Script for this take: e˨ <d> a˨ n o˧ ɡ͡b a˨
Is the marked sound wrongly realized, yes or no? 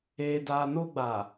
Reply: no